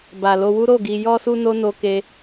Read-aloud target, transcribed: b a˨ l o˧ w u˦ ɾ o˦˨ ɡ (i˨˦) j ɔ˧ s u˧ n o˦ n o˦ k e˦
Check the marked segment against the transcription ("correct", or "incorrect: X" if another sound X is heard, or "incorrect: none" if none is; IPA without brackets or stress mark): incorrect: i˧